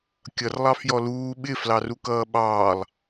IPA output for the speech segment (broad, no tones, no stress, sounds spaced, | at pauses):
kʲ ʌ r lˠ ɑ f j ɔ l uː ɓ ɪ f l ɑ r u k ʌː ɓ ɑː lˠ